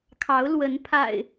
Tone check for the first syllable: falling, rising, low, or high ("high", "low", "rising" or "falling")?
rising